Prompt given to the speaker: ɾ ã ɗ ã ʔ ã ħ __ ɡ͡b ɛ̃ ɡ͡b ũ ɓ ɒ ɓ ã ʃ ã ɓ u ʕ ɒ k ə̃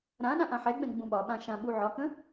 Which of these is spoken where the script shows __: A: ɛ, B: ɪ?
A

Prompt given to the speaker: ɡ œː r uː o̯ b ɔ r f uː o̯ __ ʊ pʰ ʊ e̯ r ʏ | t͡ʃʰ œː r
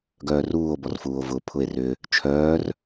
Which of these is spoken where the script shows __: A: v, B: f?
A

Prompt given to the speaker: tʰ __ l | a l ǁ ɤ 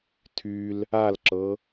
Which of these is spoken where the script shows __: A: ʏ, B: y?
B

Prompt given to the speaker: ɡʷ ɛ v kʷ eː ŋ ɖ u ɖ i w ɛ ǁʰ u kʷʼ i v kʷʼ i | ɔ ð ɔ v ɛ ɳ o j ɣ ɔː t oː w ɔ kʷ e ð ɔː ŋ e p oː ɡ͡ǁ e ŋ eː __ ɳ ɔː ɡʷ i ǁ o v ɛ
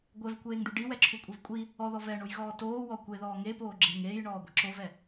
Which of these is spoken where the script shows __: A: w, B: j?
B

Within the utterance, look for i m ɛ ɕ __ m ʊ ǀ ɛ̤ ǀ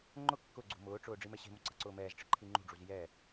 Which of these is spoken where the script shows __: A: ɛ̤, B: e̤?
B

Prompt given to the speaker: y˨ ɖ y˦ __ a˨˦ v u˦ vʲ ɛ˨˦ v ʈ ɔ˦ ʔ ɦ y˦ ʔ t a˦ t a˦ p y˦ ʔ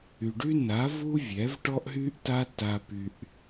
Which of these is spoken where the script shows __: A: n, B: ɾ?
A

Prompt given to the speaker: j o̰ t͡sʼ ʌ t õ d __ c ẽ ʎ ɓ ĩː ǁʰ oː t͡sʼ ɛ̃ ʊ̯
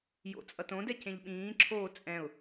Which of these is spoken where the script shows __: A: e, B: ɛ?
B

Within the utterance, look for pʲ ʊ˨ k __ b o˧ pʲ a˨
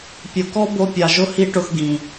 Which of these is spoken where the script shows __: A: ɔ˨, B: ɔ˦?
B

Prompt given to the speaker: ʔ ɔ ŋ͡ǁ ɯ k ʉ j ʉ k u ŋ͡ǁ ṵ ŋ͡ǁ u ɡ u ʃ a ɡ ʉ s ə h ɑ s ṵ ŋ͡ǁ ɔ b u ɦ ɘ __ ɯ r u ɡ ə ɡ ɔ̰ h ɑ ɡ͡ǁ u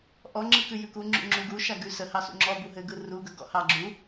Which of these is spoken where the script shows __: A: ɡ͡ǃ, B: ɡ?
B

